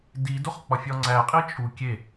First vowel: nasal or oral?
oral